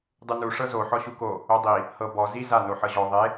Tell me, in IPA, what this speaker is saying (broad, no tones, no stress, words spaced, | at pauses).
dˤunu ʂɤzo ħɔɕuko | odˤi | hɤ bɔ zi za noħɤʑɔ ðˤe